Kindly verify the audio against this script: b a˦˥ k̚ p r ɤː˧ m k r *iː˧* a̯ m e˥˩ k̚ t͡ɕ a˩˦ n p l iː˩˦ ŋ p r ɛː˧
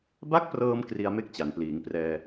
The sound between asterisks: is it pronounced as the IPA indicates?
no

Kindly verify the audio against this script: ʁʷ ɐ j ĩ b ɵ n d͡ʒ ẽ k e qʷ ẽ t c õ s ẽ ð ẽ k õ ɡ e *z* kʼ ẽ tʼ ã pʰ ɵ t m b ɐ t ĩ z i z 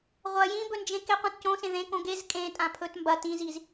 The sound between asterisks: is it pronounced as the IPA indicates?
yes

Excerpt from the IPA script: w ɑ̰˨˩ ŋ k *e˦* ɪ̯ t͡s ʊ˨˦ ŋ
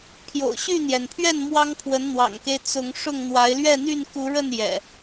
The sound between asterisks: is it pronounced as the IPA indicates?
yes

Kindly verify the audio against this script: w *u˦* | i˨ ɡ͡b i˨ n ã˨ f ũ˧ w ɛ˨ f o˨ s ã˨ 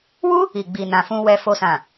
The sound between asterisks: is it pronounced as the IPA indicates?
yes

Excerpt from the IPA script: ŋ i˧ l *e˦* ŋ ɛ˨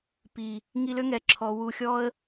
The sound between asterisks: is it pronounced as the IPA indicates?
no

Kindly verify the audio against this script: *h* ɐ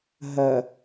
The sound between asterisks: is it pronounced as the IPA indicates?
no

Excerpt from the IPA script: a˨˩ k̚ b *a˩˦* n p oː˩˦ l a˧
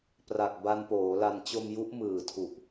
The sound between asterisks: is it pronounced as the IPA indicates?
no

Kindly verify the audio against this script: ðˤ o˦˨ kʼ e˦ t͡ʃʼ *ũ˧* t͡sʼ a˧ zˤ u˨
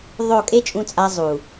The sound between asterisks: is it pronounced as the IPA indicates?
yes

